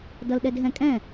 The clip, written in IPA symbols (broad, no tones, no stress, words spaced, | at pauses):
dʌlɗɛdɦɛ̃kʼɛ̃